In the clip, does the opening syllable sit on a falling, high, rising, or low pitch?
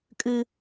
high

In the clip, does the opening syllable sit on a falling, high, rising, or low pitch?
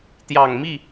low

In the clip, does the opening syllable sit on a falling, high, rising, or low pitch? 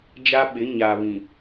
high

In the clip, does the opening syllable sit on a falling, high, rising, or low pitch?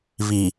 low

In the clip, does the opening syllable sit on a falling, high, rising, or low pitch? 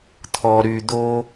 low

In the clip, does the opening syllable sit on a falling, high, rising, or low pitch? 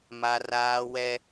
high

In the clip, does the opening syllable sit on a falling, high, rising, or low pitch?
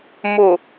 low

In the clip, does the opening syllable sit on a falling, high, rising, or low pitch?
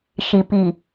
low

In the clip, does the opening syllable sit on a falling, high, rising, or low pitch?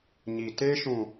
low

